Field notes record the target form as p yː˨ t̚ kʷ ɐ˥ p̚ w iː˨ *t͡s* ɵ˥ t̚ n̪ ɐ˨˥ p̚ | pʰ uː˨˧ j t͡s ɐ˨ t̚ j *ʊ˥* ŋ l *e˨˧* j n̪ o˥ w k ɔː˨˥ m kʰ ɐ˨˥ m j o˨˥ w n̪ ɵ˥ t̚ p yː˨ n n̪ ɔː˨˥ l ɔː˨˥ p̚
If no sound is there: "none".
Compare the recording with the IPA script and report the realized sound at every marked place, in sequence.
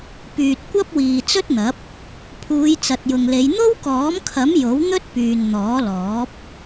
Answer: t͡s, ʊ˨, e˨˧

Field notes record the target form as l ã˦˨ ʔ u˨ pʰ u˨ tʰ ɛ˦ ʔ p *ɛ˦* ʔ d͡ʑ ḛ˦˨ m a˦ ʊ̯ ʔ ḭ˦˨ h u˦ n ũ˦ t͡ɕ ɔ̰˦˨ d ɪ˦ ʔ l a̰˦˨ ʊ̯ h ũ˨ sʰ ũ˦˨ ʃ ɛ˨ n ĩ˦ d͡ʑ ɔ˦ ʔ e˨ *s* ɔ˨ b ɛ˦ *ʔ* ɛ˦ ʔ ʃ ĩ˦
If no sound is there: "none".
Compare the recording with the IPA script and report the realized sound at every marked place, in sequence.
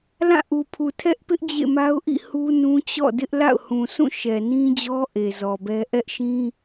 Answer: ɪ˦, z, ʔ

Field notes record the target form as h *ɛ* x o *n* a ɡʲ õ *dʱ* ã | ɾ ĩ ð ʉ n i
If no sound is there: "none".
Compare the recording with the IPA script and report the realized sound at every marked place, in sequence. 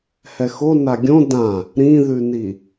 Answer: ɛ, n, d

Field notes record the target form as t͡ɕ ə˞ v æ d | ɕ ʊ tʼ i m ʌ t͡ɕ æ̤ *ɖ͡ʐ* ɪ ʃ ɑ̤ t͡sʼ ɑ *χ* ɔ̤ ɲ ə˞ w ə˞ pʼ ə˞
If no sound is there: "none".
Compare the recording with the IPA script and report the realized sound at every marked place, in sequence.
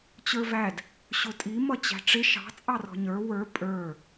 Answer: ʈ͡ʂ, r

